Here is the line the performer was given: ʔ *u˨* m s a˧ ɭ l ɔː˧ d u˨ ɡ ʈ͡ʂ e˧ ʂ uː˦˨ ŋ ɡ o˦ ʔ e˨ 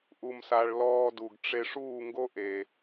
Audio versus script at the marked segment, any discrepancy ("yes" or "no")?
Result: yes